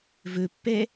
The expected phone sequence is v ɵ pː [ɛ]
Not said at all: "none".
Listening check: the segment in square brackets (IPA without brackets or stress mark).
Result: ɛ